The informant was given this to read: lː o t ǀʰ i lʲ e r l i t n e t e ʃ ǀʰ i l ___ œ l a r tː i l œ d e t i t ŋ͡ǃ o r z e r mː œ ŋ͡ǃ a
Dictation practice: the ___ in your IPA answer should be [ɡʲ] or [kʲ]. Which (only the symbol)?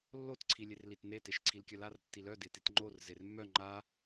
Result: kʲ